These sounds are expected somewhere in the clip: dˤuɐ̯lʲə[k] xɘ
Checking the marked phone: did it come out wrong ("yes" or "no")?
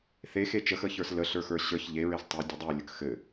no